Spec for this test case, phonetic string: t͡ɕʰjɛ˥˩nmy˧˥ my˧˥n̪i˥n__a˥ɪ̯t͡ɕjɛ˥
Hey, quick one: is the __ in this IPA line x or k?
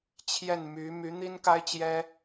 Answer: k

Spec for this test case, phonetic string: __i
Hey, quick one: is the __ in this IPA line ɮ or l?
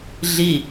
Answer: ɮ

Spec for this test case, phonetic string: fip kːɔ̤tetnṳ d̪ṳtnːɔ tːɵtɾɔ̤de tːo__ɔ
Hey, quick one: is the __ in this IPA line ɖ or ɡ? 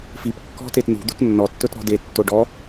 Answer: ɖ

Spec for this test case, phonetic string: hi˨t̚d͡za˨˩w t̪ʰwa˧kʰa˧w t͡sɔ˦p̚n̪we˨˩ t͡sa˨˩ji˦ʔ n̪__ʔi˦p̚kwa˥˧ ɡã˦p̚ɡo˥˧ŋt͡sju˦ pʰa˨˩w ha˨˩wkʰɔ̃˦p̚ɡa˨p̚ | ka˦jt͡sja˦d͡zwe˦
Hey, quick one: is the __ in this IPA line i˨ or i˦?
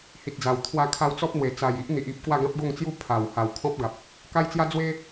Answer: i˨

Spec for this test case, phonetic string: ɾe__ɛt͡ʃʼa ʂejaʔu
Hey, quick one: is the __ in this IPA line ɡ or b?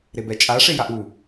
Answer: b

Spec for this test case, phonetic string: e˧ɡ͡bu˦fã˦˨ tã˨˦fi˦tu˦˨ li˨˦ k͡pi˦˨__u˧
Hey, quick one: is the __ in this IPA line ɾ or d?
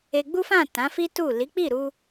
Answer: ɾ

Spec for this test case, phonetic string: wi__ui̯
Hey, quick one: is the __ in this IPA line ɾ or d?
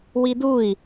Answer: d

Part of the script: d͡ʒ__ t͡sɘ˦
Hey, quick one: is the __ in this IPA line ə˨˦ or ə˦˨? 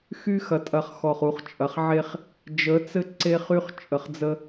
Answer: ə˨˦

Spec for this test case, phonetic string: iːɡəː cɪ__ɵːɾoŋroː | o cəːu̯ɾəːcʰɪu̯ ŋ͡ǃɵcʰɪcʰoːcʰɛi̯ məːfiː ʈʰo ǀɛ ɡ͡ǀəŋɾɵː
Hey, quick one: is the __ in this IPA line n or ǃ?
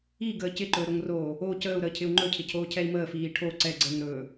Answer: ǃ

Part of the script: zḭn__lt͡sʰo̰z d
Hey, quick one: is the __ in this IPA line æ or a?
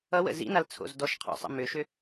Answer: a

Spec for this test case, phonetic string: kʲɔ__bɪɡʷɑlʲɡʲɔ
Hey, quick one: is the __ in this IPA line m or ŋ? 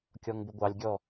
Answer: ŋ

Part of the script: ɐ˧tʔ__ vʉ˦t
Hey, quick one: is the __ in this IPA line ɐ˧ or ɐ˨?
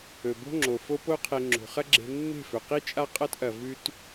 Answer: ɐ˨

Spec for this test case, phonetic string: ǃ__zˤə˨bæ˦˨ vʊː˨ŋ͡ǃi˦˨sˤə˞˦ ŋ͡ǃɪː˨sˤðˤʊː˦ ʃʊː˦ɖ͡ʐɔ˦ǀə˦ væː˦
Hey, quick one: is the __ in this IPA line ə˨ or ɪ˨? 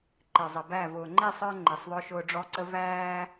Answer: ɪ˨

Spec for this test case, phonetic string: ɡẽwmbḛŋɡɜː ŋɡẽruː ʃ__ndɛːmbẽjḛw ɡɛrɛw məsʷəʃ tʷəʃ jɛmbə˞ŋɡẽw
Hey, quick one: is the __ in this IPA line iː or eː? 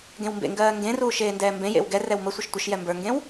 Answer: eː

